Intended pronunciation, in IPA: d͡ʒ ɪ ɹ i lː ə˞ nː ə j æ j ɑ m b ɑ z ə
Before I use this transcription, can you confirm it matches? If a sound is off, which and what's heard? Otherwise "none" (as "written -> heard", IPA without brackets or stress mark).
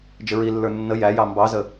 none